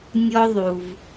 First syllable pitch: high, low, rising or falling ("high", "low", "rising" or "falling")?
high